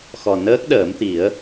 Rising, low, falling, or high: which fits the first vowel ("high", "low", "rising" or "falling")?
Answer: low